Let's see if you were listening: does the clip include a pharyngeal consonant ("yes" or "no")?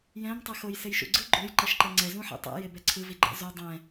yes